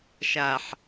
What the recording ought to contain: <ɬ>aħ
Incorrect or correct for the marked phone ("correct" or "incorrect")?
incorrect